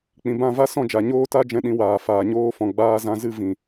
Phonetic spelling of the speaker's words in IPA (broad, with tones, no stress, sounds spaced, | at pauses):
k͡p ĩ˨ b ã˦˨ v a˦ s ɔ̃˦˨ d͡ʒ a˨ ɲ oː˦ t a˦ d͡ʒ ɛ̃˧ ɗ ĩ˧ w aː˨ f aː˨ ɲ oː˧ f ɔ̃˨ ɡ͡b aː˧ z ã˧ z ɨ˦˨ v ĩ˨